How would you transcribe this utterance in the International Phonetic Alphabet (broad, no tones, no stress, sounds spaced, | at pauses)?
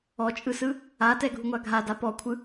ɔ t͡ʃʼ ɯ s ɯ | a t ɛ ɡʱ u ŋʷ a ɡʱ a d a p ɔ kʷʰ ɯ